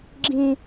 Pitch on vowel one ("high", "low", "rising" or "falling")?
high